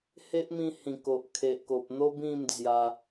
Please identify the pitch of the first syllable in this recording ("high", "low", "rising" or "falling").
high